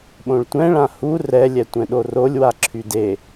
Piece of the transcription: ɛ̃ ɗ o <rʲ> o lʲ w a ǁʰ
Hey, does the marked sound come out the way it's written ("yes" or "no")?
no